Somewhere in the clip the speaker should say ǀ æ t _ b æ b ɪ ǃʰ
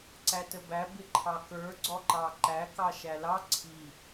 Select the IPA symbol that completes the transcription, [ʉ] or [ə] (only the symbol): ə